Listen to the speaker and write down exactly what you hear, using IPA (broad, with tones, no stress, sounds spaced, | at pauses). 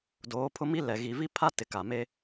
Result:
d oː˨˦ pʰ ʊ˦ m i˦ l ɛ˨ ɣ i˨ v i˦ pʰ a˦ t ɪ˨ k a˨ m e˦